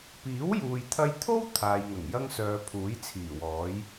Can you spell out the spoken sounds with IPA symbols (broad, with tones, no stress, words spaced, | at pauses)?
piː˨˥wjuː˨jt̪ʰɐ˧jt̪ʰo˥w t̪ʰaː˨jŋɐ˨˩ŋ jɐ˥ŋsœː˨˧ pʰuː˨˥jt͡sʰiː˨˩wɔː˨˥j